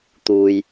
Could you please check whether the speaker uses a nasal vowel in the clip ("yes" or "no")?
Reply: no